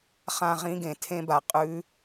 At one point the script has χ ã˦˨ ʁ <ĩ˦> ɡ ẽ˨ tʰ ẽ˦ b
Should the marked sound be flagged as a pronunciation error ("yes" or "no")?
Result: no